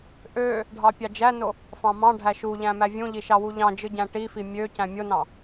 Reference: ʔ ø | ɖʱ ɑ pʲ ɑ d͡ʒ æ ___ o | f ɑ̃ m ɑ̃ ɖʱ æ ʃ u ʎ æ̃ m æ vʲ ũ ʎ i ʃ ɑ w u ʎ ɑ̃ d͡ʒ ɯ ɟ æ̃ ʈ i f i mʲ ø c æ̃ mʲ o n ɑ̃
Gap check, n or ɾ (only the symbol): n